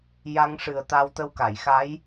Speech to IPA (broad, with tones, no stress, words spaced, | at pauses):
ja˧ŋʂɨ˨˩ə̯ t̪a˧wt̪ə˧wka˨˩˨jxa˧˥j